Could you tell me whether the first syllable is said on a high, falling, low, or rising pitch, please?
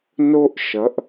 high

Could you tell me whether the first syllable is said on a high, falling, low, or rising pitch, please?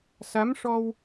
rising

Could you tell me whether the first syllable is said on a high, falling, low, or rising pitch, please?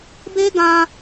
high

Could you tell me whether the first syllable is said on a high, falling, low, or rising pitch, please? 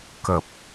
low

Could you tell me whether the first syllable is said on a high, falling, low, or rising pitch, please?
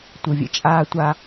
low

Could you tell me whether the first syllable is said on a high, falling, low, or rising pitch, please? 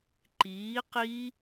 rising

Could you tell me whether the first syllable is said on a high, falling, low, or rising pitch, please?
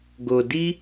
low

